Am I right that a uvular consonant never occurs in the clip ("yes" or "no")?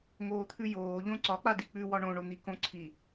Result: yes